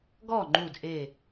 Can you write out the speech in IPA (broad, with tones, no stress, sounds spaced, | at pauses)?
ɡ ɔ˥˩ ŋ͡ǃ u˧˩ d ʔ e˧˩